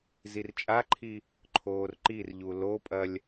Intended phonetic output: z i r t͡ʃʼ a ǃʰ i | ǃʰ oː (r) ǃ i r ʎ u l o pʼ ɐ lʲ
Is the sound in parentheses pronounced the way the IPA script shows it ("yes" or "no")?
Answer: yes